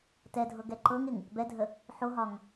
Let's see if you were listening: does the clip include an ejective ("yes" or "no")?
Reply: no